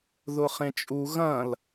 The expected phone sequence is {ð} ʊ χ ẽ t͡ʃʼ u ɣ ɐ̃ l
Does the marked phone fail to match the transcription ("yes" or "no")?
no